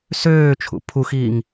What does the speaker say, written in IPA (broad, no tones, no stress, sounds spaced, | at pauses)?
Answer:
s øː t͡ʃʰ ṵ pʰ u x iː ŋ